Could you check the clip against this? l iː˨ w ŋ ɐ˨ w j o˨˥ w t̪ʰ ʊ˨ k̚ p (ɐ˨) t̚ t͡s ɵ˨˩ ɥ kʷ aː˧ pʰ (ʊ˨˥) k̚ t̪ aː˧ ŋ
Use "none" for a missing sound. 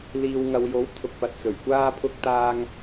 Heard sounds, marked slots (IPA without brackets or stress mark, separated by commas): ɐ˨, ʊ˧